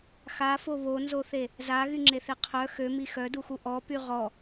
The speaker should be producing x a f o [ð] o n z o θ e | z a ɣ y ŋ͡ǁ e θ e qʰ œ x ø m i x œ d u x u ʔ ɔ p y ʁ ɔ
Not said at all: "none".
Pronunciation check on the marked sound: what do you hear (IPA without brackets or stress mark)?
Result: β